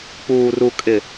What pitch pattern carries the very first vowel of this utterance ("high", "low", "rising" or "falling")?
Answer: low